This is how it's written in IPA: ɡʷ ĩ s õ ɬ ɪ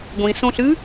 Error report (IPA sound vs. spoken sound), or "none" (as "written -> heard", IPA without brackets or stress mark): ɪ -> ɨ